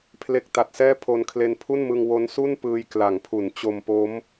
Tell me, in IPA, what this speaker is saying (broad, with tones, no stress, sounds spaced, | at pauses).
pʰ l e˦˥ k̚ t a˨˩ t̚ s ɛː˥˩ pʰ o˧ n kʰ l e˧ n pʰ u˥˩ n m ɯ˧ ŋ w o˦˥ n s u˥˩ n p ɯː˧ j k l a˩˦ ŋ pʰ u˩˦ n t͡ɕ o˧ m p o˦˥ m